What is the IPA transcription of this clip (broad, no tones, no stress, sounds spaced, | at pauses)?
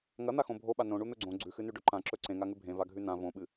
ŋ ɐ n̪ a x õ bʱ o ɓ a n õ ɳ u n̪ ɵ ɡ͡ǀ õ ɡ͡ǀ ʉ x ɨ n ʉ ɖ ɵ ǃ ã ǁ ɵ ǀ ẽ ŋ a ŋ ʉ bʱ ẽ v a ɡʱ ʉ n ã v õ ɓ ɨ